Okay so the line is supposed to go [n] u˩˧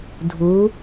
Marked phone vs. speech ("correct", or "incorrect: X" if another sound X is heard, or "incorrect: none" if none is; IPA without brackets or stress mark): incorrect: dʱ